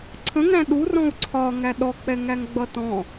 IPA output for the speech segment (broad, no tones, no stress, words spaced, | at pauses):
ǀʰə̃ŋæ̃ ɗurɔ̃u̯ ǀʰɒŋæ ɗɔk͡pɛ ŋæŋɡ͡bʌtɔ̃